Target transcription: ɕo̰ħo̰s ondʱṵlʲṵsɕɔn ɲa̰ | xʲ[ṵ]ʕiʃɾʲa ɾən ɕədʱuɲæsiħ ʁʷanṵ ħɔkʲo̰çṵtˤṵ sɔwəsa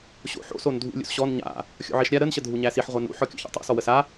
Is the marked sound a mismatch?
yes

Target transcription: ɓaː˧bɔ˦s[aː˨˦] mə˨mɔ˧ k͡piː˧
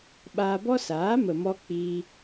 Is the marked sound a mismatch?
no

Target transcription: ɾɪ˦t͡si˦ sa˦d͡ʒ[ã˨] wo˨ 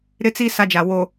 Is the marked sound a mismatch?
yes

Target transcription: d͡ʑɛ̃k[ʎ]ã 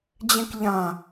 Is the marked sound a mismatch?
no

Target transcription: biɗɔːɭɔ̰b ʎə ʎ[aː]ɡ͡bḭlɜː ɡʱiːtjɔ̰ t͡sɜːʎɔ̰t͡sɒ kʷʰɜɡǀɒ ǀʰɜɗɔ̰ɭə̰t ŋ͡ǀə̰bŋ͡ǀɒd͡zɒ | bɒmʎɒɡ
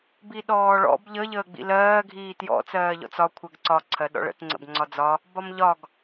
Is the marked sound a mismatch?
yes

